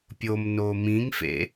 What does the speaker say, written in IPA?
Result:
pʲomnoː mĩŋfḛ

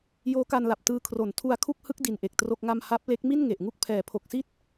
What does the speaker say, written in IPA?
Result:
joː˦˥ka˧nla˨˩p̚ tɯː˧kʰro˨˩n tʰu˧a̯kʰu˥˩k̚hɯ˦˥k̚ di˧nʔe˨˩k̚tro˥˩k̚ŋa˥˩m ha˦˥p̚le˦˥k̚ mi˥˩n ŋe˨˩ʔŋu˥˩k̚ pʰɛː˩˦pʰo˨˩k̚si˥˩t̚

